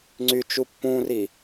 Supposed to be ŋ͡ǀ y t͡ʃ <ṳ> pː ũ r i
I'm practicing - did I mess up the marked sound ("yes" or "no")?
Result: yes